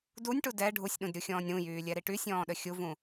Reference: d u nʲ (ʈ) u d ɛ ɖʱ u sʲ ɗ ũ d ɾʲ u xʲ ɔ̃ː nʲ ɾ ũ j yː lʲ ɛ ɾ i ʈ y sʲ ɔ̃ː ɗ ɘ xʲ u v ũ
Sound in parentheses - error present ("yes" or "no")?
no